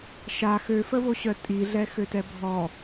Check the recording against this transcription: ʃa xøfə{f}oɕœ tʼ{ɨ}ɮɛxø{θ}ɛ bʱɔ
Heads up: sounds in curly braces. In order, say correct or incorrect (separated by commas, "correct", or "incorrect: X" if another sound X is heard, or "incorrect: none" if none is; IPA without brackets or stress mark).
incorrect: v, incorrect: i, incorrect: t